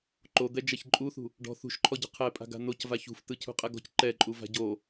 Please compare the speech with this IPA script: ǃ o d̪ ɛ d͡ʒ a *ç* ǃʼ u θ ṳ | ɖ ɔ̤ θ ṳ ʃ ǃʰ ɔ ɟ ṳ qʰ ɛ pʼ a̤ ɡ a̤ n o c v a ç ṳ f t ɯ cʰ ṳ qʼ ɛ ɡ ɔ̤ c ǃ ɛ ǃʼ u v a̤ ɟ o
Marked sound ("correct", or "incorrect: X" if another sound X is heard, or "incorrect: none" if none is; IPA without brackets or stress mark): correct